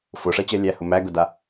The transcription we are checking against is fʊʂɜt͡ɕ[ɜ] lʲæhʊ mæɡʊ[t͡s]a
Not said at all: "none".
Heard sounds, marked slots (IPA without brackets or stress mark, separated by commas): ɜ, d